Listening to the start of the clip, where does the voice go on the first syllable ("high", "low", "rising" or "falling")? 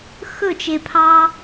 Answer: falling